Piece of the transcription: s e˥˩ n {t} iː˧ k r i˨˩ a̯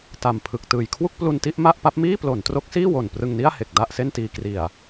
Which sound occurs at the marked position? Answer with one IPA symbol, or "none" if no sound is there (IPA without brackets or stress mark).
t